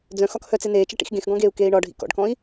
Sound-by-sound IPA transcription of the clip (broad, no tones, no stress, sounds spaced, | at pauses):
d͡z œ̃ x ɒ k h œ t͡s e n eː t͡ʃ ɐ ʈ ḭ x ɡ ẽ x ɡ ɔ̃ ɡ eː u̯ k eː i̯ ɳ ɒ ɖʱ ḭ k ɔ̰ ɖ k ɔ̃ i̯